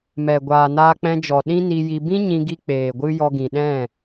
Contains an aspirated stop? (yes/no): no